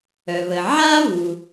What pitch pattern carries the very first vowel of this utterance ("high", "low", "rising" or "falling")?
low